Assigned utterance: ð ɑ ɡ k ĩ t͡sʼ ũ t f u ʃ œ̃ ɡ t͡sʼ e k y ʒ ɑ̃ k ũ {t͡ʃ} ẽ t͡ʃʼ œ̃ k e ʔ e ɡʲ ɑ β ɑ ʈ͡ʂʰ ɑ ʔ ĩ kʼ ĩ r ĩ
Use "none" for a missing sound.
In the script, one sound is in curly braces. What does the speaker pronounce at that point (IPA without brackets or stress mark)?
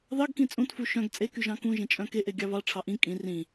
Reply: ʒ